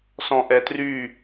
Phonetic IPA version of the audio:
s ɔ̃ ʔ ɛ t r y

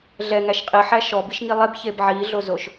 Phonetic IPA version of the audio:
ɮ ɛ ŋ æ ʃ qʼ i ħ æ ʃ ɔ b i ʃ ŋ i lˠ e b ç e b ʕ i ɮ o z o ʃ

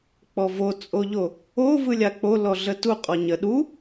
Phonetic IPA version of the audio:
k͡p ɔ v o t͡sʼ o ʎ o | o v ɯ lʲ a k͡p o l ɔ ɮ ə t u qʼ ɔ ɲ ə ɗ u

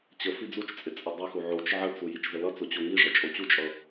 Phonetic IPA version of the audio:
t͡ɕ ə f i d͡z u t͡ʃ t͡sʼ ɪ t͡sʼ ɪ dˤ ʌ x u ʕ o t͡ʃ ʕ ə t͡s u j i t͡ʃ z ə l ʌ t͡s o t͡ɕ o ŋ i ʐ ʌ t͡ʃʼ o t͡ɕ u t͡ʃʼ ʌ

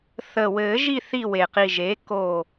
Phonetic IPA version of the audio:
θ ə˨˩ w ɘː˨˩˦ ʒ i˦˨ θ i˦˨ w e˨˩ q i˨˩ ʒ e˩˥ k o˦˨

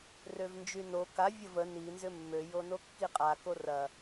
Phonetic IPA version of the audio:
r ø v n d͡ʒ y n o k a vʲ ə v ə n i n z ʏ mː ø j o n o kː i qʼ a k o r ɐ

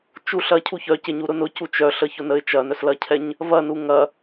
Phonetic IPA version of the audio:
t͡ʃ u ɬ ɐ cʰ u ç œ c e ɲ u ɾ ʊ n ʊ c u t͡ʃ œ ɬ ə ç ʊ n ə ɪ̯ t͡ʃ ɐ n œ s l ɐ cʰ ɛ ɲ | v ɐ n u ŋ ɐ

